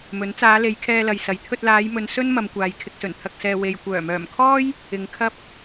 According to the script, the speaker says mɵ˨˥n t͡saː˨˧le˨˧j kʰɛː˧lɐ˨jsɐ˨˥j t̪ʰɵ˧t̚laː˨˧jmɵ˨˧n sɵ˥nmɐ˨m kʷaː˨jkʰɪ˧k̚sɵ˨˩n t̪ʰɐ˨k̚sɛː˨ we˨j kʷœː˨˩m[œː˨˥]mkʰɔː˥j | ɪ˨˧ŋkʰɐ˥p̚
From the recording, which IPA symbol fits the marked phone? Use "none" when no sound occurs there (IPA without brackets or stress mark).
œː˨˩